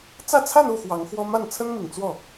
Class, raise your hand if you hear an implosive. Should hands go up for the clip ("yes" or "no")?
no